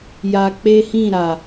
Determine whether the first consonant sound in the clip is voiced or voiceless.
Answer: voiced